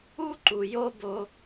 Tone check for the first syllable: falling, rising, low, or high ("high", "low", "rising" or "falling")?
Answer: high